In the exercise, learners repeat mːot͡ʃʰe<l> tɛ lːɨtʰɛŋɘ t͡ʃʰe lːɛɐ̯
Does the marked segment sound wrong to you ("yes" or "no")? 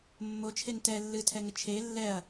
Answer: yes